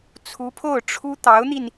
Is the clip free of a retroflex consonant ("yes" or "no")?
no